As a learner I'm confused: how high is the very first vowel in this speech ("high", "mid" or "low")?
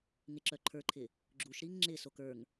mid